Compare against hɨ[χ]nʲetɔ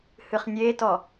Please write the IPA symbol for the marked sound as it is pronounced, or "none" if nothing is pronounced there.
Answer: χ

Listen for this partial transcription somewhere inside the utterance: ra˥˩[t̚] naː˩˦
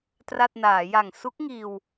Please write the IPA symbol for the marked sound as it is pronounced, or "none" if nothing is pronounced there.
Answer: t̚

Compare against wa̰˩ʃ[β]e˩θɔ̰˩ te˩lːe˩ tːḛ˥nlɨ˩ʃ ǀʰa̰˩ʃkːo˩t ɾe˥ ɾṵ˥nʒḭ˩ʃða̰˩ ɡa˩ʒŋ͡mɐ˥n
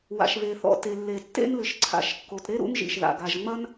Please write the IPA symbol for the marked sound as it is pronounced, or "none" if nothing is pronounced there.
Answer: β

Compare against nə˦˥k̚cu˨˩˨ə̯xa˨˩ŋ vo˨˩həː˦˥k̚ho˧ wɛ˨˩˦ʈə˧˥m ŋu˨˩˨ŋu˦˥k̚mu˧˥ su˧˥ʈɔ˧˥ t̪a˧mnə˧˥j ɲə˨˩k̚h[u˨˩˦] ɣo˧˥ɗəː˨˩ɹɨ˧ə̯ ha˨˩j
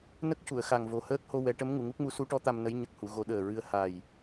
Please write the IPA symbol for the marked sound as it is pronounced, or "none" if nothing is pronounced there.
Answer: u˨˩˨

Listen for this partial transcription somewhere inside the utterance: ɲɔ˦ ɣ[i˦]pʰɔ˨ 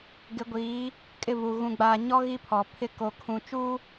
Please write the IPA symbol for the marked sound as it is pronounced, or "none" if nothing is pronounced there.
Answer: i˦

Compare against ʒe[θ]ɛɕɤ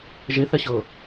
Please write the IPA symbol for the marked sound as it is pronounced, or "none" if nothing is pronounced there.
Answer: θ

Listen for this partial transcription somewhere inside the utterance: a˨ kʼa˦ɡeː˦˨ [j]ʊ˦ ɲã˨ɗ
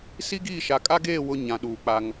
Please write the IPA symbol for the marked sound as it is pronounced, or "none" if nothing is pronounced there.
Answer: w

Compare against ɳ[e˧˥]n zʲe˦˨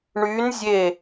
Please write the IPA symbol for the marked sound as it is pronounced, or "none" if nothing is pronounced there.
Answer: y˧˥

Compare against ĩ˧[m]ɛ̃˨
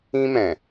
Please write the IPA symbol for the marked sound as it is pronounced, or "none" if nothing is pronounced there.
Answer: m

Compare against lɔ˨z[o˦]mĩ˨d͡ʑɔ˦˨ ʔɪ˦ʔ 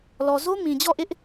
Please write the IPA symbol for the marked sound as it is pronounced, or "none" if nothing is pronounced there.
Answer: o˦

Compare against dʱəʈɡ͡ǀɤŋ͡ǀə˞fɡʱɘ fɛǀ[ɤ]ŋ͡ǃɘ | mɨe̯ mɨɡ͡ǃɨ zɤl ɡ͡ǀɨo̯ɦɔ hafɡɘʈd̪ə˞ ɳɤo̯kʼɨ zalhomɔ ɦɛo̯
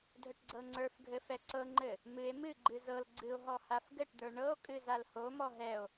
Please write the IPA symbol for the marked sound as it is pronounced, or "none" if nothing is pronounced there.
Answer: ɤ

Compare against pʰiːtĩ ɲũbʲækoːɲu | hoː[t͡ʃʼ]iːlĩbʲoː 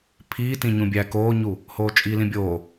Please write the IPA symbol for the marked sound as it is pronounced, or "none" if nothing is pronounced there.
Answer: t͡ʃʼ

